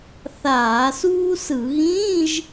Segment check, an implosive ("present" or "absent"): absent